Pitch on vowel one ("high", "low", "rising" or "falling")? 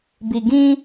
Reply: low